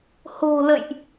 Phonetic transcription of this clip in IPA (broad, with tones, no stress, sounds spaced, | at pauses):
h o̤˨˩ l ə̰˧˨ j ʔ